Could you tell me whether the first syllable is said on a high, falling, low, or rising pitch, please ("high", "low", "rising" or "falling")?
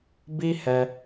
high